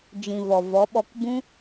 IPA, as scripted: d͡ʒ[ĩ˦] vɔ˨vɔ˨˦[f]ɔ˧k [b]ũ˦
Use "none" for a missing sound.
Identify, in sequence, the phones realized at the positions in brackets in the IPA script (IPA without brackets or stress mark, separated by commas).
ĩ˨, ɓ, b